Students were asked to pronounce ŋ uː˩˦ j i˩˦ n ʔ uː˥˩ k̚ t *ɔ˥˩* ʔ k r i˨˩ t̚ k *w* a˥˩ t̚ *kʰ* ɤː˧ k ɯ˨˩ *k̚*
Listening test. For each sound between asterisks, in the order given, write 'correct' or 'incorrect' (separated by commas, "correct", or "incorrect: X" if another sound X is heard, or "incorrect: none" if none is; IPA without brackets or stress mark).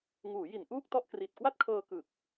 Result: correct, correct, correct, correct